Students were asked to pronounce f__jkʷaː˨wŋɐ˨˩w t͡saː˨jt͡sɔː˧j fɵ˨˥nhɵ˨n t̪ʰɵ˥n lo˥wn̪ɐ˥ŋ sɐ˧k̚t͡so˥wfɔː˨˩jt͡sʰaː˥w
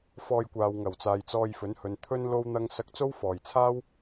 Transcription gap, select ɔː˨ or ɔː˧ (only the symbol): ɔː˧